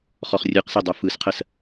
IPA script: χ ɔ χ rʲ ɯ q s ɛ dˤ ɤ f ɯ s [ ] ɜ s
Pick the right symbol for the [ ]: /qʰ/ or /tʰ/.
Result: qʰ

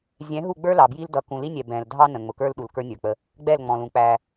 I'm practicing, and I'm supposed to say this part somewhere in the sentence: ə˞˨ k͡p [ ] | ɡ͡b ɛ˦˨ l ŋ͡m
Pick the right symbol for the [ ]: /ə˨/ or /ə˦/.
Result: ə˦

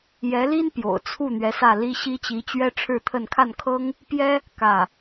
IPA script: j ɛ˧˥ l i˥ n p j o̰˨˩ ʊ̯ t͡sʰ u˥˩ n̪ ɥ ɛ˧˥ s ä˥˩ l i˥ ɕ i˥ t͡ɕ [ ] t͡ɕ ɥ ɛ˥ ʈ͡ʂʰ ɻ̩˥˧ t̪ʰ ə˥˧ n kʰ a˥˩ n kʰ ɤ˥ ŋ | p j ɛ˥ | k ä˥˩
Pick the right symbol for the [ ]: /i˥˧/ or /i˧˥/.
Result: i˧˥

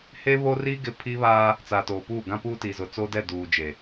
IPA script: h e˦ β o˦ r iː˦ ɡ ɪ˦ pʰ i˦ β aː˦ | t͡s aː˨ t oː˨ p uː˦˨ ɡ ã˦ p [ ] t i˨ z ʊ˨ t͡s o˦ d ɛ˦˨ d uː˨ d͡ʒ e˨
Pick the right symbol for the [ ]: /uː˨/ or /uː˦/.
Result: uː˦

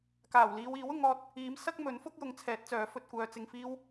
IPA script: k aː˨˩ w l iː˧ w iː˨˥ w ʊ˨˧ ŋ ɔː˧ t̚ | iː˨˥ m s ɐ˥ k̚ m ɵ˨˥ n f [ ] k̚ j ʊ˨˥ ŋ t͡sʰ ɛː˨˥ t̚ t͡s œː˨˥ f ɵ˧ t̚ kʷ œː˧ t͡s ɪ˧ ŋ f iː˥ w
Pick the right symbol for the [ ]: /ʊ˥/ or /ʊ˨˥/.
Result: ʊ˥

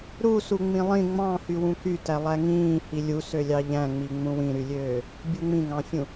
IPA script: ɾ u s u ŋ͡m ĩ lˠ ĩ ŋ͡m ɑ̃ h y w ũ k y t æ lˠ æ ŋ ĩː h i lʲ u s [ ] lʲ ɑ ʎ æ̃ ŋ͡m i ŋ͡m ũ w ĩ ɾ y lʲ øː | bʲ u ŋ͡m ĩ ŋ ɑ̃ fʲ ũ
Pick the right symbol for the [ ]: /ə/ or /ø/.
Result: ø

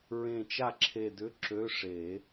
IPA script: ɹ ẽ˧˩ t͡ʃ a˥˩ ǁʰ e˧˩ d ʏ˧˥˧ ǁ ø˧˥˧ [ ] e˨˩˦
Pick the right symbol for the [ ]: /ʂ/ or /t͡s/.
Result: ʂ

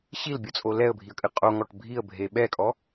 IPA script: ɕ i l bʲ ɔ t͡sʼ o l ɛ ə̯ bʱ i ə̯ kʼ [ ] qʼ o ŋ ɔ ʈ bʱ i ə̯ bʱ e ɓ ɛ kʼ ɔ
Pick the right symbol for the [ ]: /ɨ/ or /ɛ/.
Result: ɨ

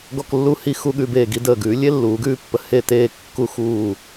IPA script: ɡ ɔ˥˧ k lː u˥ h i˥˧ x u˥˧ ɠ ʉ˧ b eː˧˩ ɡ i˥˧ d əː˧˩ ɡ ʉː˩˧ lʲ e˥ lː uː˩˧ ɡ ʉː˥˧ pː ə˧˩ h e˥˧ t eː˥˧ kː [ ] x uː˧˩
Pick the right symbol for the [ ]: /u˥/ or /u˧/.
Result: u˥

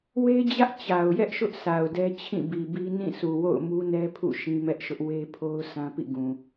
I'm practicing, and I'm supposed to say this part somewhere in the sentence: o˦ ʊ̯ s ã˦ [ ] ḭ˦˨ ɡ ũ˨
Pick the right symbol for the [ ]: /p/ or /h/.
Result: p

